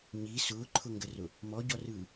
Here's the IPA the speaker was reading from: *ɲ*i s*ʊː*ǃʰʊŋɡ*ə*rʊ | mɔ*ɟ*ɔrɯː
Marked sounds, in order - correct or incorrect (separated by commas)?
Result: correct, correct, correct, correct